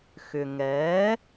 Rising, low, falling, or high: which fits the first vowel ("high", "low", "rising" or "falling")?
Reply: low